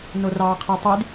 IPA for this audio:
n o r ɑː qʰ e tˤ y d

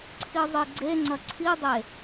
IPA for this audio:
ǀʰ i zˤ i ɡ͡ǀ e ŋ͡ǀ ɐ ǀʰ i dˤ e

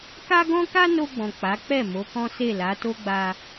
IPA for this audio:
k a˦ ɡ ɔ̃˦ k a˦ n o˧ ɡ͡b ɔ̃˨ k͡p a˨˦ k͡p ɛ˦˨ m o˨˦ k ɔ̃˦ s e˦˨ l a˨˦ t o˦ ɡ͡b a˧

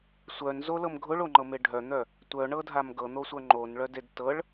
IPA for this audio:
sʷ œ n z o l ɤ m ɡʱ ʊ ɭ o ŋ͡ǃ ɤ m e ɖʱ œ n̪ œ | tʷ œ ɳ ɤ dʱ a m ɡ ɤ n̪ o sʷ œ ŋ͡ǃ o n ɭ œ d e d t ɤ ɭ

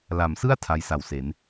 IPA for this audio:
l a˩˦ m s ɯ˥˩ a̯ tʰ a˦˥ j s a˨˩ w s e˩˦ n

